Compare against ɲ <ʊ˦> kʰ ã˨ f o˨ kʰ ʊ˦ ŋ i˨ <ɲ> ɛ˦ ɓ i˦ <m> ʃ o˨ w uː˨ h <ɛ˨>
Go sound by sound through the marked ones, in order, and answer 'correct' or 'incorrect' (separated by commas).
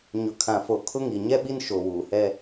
incorrect, correct, incorrect, incorrect